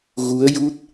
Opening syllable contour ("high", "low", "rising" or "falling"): rising